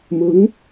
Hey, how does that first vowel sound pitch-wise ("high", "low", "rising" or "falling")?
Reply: rising